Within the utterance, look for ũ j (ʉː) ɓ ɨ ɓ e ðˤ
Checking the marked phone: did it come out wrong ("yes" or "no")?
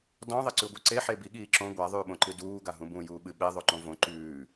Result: yes